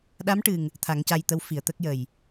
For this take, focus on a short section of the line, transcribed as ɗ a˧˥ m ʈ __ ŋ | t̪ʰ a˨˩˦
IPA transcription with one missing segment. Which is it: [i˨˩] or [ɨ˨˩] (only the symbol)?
ɨ˨˩